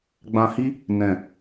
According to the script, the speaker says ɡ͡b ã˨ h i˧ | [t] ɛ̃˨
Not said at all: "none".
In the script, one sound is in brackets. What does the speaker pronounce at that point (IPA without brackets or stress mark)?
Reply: n